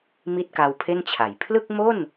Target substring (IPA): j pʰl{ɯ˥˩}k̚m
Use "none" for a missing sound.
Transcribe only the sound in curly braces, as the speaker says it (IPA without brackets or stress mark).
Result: ɯ˥˩